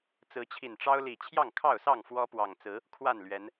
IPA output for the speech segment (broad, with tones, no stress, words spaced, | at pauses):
t͡sɹ̩˨˦t͡ɕʰi˨˩nʈ͡ʂɑ˦ʊ̯li˨˩ t͡ɕʰjɑ˥˨ŋkʰɑ˥˨ʊ̯sɑ˥˨ŋ fwɔ˦pwɑ˨˩ŋ t͡sɹ̩˨˦ | kʰwa˥˨nlɥɛ˨˦n